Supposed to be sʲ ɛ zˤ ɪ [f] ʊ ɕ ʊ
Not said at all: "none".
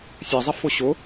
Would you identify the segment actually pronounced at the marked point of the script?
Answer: f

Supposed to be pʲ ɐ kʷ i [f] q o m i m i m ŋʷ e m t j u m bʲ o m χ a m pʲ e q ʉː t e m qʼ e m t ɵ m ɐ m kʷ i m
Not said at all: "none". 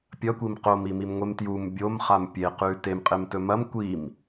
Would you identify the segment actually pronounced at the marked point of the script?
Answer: m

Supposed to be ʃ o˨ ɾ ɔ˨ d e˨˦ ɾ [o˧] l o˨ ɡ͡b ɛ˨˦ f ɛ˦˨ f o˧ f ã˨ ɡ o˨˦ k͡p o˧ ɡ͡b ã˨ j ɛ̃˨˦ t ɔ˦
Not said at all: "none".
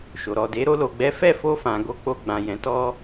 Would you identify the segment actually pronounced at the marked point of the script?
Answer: o˧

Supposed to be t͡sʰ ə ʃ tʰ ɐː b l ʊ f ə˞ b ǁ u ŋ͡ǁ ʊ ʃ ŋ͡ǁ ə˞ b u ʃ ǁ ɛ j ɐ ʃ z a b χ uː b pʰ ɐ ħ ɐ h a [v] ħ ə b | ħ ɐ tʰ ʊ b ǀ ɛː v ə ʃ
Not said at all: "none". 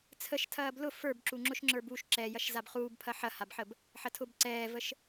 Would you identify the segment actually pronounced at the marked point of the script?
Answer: b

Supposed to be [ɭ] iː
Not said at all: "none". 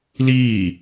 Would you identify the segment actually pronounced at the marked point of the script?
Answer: l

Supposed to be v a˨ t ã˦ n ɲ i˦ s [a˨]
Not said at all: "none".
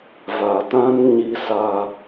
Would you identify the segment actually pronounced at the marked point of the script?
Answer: a˦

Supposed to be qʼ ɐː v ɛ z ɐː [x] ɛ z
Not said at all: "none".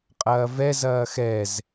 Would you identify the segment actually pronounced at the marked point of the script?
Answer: x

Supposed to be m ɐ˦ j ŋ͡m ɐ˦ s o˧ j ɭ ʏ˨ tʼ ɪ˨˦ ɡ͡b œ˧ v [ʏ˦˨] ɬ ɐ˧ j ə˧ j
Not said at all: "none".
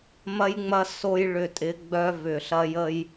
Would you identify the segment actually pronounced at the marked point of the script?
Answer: ʏ˨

